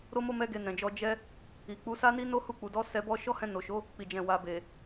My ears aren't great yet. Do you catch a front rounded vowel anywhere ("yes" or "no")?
no